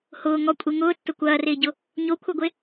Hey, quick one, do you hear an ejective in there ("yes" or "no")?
yes